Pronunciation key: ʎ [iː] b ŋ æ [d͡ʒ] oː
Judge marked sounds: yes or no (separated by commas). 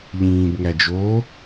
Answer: no, yes